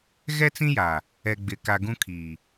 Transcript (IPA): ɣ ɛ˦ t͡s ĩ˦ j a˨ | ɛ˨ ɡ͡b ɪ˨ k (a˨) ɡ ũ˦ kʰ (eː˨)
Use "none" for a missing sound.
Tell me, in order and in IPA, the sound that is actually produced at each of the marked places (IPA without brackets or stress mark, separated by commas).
a˨, iː˨